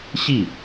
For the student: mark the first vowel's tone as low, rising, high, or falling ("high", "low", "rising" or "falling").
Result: falling